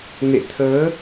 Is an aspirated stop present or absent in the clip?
present